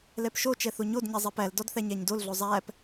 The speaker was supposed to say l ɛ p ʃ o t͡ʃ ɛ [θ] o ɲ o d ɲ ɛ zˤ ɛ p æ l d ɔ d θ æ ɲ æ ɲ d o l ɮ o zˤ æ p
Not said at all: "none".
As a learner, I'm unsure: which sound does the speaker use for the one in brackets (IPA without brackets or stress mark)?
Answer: θ